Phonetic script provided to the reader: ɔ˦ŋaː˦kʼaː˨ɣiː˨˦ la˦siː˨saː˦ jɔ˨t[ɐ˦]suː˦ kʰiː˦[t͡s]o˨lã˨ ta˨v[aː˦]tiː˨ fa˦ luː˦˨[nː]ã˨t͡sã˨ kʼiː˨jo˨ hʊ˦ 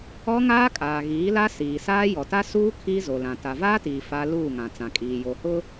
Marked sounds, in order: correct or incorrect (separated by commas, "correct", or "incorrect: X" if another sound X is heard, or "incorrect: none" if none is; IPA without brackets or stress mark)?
incorrect: a˦, incorrect: z, correct, incorrect: ŋ